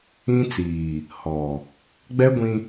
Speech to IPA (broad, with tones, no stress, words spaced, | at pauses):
ĩ˦t͡siː˨ | hɔ˨ | ɡ͡bɛ˦ ɡʷĩ˦